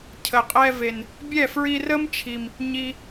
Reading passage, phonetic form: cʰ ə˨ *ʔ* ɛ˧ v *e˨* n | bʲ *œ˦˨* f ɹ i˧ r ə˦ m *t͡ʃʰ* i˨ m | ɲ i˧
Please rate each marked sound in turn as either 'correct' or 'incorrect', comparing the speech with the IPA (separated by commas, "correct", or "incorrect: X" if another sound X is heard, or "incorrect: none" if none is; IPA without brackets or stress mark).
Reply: incorrect: qʼ, correct, incorrect: ɛ˦˨, correct